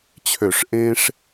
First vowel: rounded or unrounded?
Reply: rounded